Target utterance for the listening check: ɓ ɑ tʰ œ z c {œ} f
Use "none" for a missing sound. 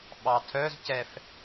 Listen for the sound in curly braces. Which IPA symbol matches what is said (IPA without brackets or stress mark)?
ɛ